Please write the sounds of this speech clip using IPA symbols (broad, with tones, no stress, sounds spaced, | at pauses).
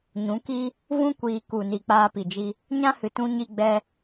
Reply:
ɲ ũ˨˦ k i˦ | v ũ˦ kʷ iː˧ k u˨ n i˨ k͡p aː˧ p i˨ d͡ʒ i˧ | ɲ ã˦ h ɨ˨ t ũ˧ ɲ i˧ ɡ͡b ɛ˧